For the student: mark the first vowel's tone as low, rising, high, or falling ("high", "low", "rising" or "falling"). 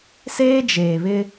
high